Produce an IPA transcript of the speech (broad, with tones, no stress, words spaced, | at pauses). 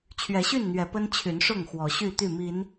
t͡ɕʰɥɛ˨˦ɕy˥˨nn̪ɥɛ˨˦ pə˦nt͡ɕʰy˨˦nʂʊ˥˨ŋ xwɔ˨˦ɕy˥˨t̪y˥˨ mi˨˦n